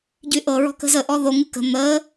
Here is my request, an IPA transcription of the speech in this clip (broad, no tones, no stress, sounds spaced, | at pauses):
ɟ y ʔ ɤ ɹ ɔ̤ k ə̤ z ə ʔ ɔ ð o ŋ ɨ k ə̤ n̪ ə